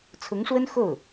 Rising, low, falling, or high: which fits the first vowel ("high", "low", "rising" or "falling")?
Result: rising